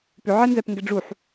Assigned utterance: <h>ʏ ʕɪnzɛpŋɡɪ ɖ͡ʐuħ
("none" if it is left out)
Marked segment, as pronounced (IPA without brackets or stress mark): p